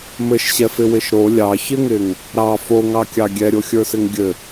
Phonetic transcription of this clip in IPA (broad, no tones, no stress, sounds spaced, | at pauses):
m ɘ ʃ ɕ ɛ f ɪ w ɪ ʃ ɾ o lʲ ɑ ç ɪ ŋ ɪ ŋ | ɾ ɑ f o ŋ ɑ kʲ ɑ ɡʲ ɛ ɾʲ o xʲ ə˞ s ɪ ŋ ɡʲ ɘ